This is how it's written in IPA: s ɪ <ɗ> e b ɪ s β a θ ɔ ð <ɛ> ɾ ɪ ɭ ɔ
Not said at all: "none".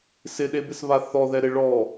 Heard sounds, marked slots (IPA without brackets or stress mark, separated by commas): ɗ, ɛ